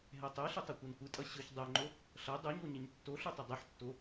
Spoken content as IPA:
ɦ ɛ tˤ o ɬ ɪ tˤ ʌ kʷ ʌ n kʷ ɯ tʼ ʌ ɕ ɯ ç dˤ ɛ ŋ͡ǃ o | ɬ ʌ dˤ u ɲ o ɲ ɪ ɲ tː o ɬ u tˤ ɪ dˤ ɯ ħ tː o

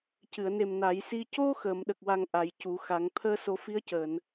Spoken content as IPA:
c ɨ˨˩˨ ə̯ n e˨˩ m n a˨˩˦ j s i˧ c o˧ x əː˨˩˨ m ɗ ə˨˩ k̚ w a˨˩ ŋ ʔ a˨˩˦ j c u˨˩˦ x a˨˩˦ ŋ t̪ʰ əː˧ s o˨˩˦ f i˧˥ ə̯ c əː˨˩˨ n

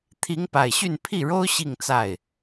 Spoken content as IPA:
t̪ʰ i˧˥ ŋ p a˨˩ ɪ̯ ɕ y˥˧ n pʰ i˥˩ ɻ o˥ ʊ̯ ɕ i˥˧ ŋ t͡s a˥˩ ɪ̯

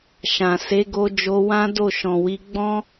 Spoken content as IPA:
ʃ ã˨ s e˨˦ ɡ o˧ d͡ʒ o˧ w ã˦ d o˦˨ ʃ ɔ̃˨ w i˧ ɡ͡b ɔ̃˦

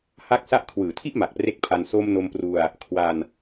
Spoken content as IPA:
h a˥˩ k̚ s a˦˥ ʔ kʰ w ɯː˨˩ tʰ i˥˩ ʔ m a˨˩ k̚ p r e˦˥ k̚ pʰ a˧ n s o˧ m n o˧ m p r u˧ a̯ | kʰ w a˧ n

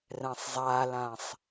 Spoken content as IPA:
r ɛ̃ sˤ zˤ a l ã sˤ

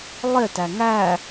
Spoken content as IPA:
lˠ e t æ ŋ æ

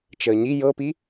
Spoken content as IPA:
t͡ʃ əː ɲ i j ɤ p i

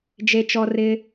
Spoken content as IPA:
d͡ʒ e˥ t͡ʃ ɔ˥ r ɪ˥

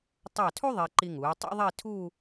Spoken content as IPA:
tˤ ɑ˧˩ tʰ u˥ ðˤ e˧ ǃ i˧ ŋ uː˩˧ tˤ ṵ˥ ðˤ i˥˧ tʰ uː˥˧

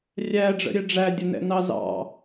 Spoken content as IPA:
rʲ æ ɖ͡ʐ ə̰ ɾʲ ɛ ɖ͡ʐ æ dʲ ə n ɛ̰ n ɑ z ɑ̰

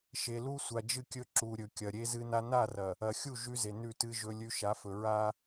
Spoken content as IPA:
ʃ e˨ l u˦ sʷ a˨ d͡ʒ ɨ˦˨ kʲ ɵ˦ ǁ u˨ ɾʲ ɵ˨ kʲ ɐ˨ ɾʲ e˦ z ɨ˦ n a˦ n a˦˨ r ɐ˨ | ɐ˨ xʲ u˦˨ ʒ ʉ˦ z e˨ n ʉ˦˨ t ɨ˦ ʒ ɵ˦ lʲ ʉ˦ ʃ a˨˦ f ɵ˨ ɹ a˦

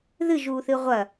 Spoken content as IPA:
ð ɨ ʒ uː θ ɨ ʁʷ ɐ

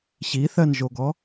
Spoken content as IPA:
ɕ i θ ɜ n ʒ o ɡ ɔ

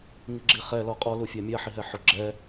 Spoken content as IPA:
ŋ i ɡ͡ǁ i χ ɛ l ɔ qʼ ɔ l u fʲ a mʲ a ħ i ɦ ɛ ħ ʊ ɡ͡ǁ ɛ

